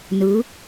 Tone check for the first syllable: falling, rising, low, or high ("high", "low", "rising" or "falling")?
rising